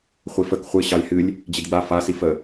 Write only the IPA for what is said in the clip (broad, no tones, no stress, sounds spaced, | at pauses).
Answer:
χʷ i f ə k χʷ ɨ ɕ ɑ lʲ h ɨ lʲ | d͡ʑ i d ɡ͡b a f a s i f ə